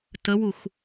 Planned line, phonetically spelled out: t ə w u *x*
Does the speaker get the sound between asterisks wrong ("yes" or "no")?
no